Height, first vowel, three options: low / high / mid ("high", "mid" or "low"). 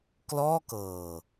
mid